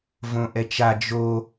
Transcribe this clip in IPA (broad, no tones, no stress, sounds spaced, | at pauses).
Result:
v õ ʔ ɛ t͡ʃ a d͡ʒ o